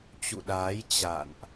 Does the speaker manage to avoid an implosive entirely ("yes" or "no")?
no